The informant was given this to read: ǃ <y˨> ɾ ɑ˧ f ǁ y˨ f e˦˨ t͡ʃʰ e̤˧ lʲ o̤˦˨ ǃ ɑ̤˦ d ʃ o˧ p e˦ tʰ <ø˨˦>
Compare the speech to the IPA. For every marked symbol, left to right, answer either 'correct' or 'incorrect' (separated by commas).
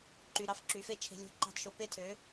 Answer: correct, correct